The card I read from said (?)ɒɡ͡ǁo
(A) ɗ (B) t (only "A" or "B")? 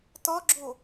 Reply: B